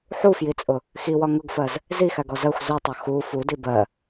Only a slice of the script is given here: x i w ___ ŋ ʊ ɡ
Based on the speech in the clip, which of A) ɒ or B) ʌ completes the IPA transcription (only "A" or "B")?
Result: A